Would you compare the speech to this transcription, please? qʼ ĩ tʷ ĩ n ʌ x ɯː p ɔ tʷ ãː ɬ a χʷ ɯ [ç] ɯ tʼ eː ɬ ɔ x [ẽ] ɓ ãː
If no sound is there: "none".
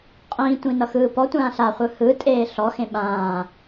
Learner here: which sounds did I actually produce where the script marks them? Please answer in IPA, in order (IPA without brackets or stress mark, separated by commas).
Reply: h, ẽ